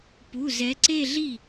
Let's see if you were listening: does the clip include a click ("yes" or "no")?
yes